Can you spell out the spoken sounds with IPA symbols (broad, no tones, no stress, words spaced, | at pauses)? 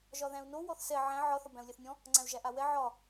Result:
ʒɒðæ̃u̯no wɔθsɛ ʕæ̃ ʕɒ θɒbæ̃u̯lʲæθnʲɔ̃ | ŋ͡ǀæ̃u̯ʒæʔawɛ ʕɒ